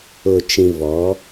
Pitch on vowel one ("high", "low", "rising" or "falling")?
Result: low